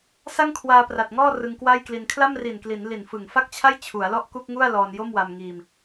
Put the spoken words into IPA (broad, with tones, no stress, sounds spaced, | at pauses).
s a˥˩ ŋ kʰ w aː˧ p r a˨˩ t̚ ŋ ɔː˥˩ r ɯ˧ ŋ k w a˥˩ j k l i˧ n kʰ l a˥˩ m r i˨˩ n k l i˩˦ n l i˨˩ n f ɯ˨˩ ŋ f a˥˩ k̚ t͡ɕʰ a˥˩ j t͡ɕʰ u˩˦ a̯ l ɔ˥˩ ʔ k u˥˩ k̚ ŋ u˥˩ a̯ l ɔː˧ n j o˥˩ m w a˧ m ŋ iː˧ m